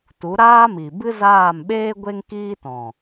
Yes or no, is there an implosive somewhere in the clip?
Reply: yes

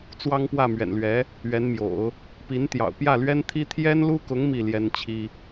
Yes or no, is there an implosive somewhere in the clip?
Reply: no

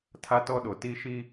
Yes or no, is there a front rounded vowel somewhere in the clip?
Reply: no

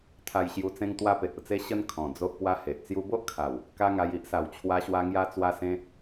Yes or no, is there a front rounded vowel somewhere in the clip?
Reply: no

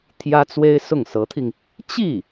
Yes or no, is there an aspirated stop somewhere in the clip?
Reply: yes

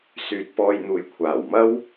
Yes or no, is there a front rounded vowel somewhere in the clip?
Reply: yes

